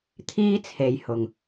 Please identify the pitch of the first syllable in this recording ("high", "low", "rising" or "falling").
high